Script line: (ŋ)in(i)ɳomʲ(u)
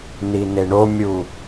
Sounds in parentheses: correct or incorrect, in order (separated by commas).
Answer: incorrect, incorrect, correct